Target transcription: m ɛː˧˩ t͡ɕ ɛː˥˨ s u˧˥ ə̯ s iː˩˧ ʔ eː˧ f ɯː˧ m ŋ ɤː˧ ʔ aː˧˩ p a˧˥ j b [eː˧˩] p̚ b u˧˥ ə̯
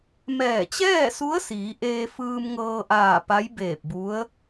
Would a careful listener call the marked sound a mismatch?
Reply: no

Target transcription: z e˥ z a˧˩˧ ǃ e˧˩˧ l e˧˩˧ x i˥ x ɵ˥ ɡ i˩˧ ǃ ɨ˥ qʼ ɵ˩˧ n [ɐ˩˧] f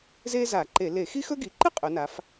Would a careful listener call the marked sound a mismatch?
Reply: yes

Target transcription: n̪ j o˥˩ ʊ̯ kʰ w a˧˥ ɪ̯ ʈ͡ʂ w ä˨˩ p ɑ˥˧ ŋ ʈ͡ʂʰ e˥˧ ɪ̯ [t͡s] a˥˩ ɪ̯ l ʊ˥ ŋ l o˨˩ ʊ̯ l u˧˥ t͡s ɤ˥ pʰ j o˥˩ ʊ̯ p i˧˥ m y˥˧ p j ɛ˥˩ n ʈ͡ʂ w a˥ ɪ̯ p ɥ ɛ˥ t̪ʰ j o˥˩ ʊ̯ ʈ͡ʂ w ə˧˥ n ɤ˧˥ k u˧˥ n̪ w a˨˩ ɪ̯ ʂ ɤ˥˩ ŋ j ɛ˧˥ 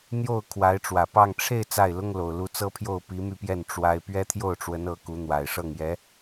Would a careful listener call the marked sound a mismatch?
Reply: no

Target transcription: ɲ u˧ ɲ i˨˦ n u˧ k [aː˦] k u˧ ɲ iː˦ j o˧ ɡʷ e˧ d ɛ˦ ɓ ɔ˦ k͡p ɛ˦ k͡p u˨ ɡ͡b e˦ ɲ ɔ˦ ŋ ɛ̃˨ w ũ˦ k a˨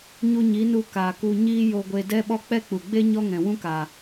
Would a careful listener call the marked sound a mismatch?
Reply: yes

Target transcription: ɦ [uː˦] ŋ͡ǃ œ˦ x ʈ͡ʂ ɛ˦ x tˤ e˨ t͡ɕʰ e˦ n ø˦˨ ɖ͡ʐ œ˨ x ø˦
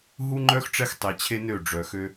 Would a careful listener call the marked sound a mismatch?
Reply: yes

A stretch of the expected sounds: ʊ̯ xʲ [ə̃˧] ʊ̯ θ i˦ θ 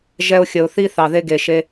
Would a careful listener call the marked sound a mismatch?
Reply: yes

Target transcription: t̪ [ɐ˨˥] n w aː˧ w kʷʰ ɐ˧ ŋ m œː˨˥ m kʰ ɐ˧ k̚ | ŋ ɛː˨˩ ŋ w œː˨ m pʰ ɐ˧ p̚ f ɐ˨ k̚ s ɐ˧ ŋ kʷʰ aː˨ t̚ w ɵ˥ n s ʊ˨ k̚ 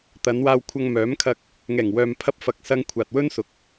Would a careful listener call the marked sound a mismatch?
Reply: yes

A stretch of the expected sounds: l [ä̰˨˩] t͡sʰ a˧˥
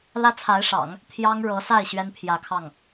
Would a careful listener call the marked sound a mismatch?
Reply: yes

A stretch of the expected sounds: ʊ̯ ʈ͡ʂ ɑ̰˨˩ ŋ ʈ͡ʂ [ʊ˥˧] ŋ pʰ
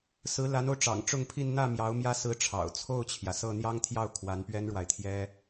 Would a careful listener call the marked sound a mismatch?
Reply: no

